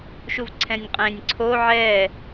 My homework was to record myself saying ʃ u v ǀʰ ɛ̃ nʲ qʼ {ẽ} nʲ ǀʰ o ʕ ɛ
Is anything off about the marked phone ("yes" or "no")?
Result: no